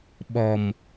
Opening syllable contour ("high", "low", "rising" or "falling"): low